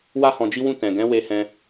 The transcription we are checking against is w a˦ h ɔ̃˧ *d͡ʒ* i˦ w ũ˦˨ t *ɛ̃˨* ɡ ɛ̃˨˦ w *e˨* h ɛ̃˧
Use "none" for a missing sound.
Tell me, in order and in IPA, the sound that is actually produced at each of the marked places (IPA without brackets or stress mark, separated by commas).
d͡ʒ, ɛ̃˨, e˧